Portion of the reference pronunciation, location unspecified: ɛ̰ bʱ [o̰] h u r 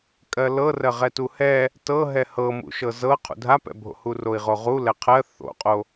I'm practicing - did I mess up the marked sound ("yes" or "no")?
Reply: no